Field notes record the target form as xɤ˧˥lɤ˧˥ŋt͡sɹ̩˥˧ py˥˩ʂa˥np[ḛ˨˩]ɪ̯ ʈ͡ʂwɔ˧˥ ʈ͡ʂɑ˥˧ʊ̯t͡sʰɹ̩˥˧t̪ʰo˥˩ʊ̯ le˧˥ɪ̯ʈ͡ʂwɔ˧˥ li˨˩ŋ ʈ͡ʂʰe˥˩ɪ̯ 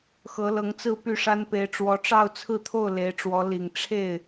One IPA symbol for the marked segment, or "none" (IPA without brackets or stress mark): e˧˥